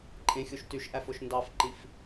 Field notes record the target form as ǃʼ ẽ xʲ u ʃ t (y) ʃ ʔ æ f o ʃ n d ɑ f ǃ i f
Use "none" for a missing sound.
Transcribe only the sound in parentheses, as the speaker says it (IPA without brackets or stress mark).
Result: y